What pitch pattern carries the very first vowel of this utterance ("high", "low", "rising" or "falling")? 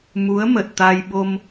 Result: rising